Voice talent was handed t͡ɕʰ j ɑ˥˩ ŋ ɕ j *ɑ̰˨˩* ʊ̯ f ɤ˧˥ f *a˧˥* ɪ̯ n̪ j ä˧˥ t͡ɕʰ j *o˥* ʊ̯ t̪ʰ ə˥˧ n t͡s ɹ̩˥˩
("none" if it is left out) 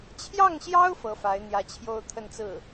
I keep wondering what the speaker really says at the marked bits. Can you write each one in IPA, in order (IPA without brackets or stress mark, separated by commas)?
ɑ˥, a˧˥, o˥˧